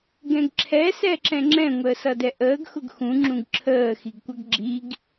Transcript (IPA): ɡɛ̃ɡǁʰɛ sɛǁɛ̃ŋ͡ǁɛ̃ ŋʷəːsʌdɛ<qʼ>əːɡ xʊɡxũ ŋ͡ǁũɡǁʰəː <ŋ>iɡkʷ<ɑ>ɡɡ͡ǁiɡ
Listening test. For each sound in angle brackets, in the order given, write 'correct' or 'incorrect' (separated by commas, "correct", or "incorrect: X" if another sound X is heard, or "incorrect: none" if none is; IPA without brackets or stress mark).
incorrect: ʔ, incorrect: x, incorrect: ʌ